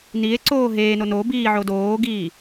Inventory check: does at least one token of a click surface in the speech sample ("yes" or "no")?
yes